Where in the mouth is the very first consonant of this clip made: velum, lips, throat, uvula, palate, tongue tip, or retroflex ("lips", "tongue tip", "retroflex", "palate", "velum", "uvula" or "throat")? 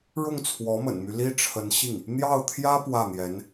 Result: retroflex